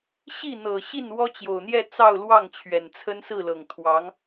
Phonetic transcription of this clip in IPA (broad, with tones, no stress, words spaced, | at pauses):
ɕi˥˩n̪ɤ˨˩ ɕi˥˩nwɔ˥t͡ɕjo˨˩ʊ̯n̪jɛ˥˧ t͡sɑ˥˧ʊ̯lwɑ˥˩ŋt͡ɕʰɥɛ˨˩n t͡sʰə˥nsɹ̩˥˩lɤ˨˩ŋ t̪ʰwɑ˧˥ŋ